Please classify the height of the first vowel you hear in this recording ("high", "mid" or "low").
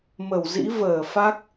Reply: mid